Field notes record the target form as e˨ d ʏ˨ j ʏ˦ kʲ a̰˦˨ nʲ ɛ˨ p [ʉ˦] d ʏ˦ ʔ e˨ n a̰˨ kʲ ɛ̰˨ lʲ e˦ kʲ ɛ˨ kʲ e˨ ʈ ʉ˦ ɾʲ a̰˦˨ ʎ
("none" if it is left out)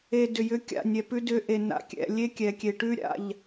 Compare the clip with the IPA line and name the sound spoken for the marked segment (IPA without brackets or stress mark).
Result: ʉ˦